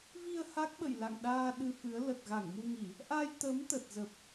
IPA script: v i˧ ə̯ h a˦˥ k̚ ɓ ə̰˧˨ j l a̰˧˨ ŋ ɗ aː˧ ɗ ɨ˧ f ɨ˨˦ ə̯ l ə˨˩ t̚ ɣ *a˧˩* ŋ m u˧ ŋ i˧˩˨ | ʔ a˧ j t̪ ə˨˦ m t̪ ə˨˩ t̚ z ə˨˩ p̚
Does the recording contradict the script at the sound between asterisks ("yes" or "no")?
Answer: no